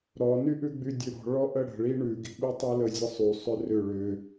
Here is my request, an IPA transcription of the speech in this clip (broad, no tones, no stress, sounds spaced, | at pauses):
ɾ ɔ n y ʔ ʉ ɡ͡b y dʲ ʉ ɾ ɔ̤ ɭ ɔ ʔ ə ɽ ə̤ ɭ i ɳ ʉ ɡ i̤ ɓ y tˤ ʉ l ə zʲ ə sˤ y sˤ ʏ r ʏ ɭ ʏ